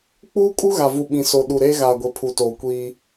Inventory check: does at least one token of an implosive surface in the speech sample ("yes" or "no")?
yes